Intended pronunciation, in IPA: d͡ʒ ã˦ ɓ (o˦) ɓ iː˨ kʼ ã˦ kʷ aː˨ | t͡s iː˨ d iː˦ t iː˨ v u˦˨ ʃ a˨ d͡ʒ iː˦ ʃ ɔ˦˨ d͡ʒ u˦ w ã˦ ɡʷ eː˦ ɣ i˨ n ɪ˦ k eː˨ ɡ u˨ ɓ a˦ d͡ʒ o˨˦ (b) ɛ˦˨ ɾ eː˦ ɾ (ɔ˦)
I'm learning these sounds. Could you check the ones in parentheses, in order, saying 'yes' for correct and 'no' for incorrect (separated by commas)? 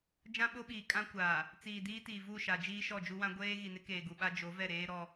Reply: yes, no, yes